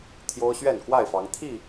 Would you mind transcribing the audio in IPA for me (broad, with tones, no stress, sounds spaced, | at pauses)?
t̪ʰ j o˦ ʊ̯ ɕ ɥ ɛ˥˨ n k w a˥˨ ɪ̯ f ɑ˨˦ ŋ t̪ʰ i˥˨